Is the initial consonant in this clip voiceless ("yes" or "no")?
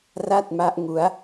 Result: no